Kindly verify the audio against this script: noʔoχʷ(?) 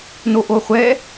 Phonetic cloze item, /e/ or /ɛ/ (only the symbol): ɛ